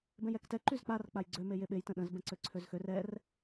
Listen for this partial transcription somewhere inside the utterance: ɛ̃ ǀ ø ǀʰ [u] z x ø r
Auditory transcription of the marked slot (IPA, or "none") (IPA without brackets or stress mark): ø